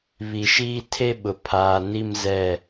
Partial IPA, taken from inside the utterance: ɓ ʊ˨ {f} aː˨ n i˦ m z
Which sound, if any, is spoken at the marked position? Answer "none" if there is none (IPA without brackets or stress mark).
pʰ